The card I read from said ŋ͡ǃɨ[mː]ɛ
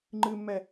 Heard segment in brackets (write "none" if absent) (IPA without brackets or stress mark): mː